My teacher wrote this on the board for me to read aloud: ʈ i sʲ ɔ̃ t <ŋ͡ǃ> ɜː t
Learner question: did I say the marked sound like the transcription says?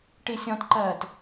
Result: no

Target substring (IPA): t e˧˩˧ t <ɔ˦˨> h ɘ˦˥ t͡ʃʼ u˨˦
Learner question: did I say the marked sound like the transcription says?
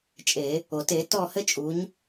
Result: yes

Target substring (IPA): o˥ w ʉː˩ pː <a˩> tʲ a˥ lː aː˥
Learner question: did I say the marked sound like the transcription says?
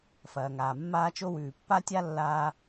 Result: no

